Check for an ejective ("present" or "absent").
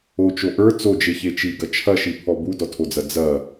absent